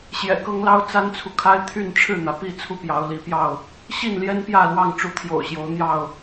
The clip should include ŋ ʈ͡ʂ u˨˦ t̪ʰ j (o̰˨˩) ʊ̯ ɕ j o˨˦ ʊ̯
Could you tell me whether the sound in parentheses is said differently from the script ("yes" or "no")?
no